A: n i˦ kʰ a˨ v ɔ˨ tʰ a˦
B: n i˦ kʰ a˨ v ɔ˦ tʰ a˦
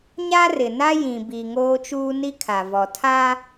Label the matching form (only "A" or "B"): A